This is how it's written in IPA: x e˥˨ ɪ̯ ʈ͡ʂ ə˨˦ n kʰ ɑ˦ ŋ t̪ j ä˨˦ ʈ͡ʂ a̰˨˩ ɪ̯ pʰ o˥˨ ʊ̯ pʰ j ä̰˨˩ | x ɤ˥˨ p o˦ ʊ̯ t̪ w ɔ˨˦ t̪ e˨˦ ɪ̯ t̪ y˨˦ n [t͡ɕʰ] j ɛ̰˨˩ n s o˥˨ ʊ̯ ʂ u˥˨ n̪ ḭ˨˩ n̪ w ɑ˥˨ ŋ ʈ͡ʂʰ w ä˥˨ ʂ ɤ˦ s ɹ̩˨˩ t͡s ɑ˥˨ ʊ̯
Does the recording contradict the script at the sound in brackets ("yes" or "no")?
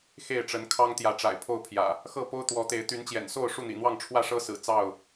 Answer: yes